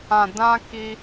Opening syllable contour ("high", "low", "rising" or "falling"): low